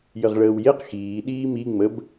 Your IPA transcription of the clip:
jəʁɭəːwjeq xiː ɗiːmi ŋ͡məb

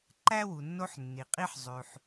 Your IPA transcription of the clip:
ǃæ˥wu˨ nːo˦ħnːi˩qʼi˦ħ zˤʉ˨ħ

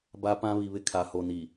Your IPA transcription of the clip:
ba˦pã˦ βi˨βɪ˦˨ kʰa˨ho˨ni˨

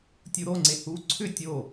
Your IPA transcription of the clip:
tʲuɾoŋ͡ǀe hu ǀʰʏ tʲo

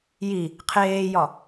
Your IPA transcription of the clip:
ji | qʰeːjɒ

